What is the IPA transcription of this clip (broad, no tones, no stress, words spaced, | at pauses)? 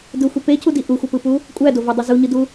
dɯxʷi pecʰudi ʔuxʷɯpɯpu | kʷʼædovodˤy zuɲɯdu